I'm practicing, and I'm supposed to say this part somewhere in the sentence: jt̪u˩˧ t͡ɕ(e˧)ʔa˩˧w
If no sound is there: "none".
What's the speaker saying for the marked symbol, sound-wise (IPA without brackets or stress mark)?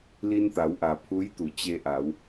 e˧